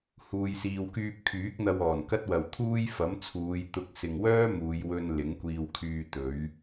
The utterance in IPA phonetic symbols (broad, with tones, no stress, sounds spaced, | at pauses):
h uː˨ j s iː˨ w k yː˧ p̚ kʰ yː˨˥ k̚ n̪ ɐ˧ w ɔː˨˩ n k ɐ˥ t̚ w ɐ˨ w t̪ʰ uː˥ j f ɐ˨˥ m t͡sʰ uː˨˧ j t̪ ʊ˧ k̚ s ɪ˨ ŋ w œː˥ m uː˨˧ j w ɵ˧ n l ɪ˨˥ ŋ kʷ iː˧ w kʰ yː˧ t̪ ɵ˨˥ ɥ